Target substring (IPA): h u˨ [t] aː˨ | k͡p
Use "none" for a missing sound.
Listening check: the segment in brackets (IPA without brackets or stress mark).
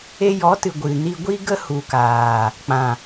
k